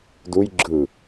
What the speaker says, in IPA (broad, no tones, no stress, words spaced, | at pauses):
duj ɡ͡ǁɯ